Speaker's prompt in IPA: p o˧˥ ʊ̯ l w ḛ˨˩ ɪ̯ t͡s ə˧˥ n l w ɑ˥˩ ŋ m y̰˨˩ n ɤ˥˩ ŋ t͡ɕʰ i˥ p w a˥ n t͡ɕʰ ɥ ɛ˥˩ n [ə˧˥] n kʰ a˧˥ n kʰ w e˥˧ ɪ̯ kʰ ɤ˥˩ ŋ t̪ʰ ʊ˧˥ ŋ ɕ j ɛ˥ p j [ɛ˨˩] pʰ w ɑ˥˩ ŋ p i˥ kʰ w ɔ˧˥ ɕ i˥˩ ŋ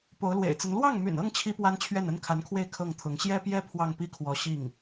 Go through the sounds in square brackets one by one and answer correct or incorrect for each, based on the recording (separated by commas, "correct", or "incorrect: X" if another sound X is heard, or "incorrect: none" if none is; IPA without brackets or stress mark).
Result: incorrect: ə˥, incorrect: ɛ˥